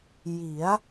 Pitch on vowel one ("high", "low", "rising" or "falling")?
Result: rising